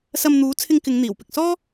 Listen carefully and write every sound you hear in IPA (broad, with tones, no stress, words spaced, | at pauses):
sɐ˧mn̪uː˨˥ t͡sʰɪ˧ŋkɪ˨˧ŋ n̪iː˨˩wpɪ˨k̚ sɔː˥